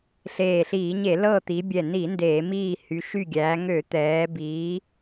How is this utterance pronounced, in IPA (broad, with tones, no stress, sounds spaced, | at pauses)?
ɬ eː˧˩ ɬ iː˧˩˧ ɲ e˧˩˧ l ɤ˧˩ t̪ i˩˧ bʲ ɛ˧˩ n i˧˩˧ n d eː˧˩˧ m iː˧˩ h y˩˧ ʃ y˧˩ ɡʲ æː˩˧ ŋ ø˧˩˧ t̪ ɛː˩˧ b iː˩˧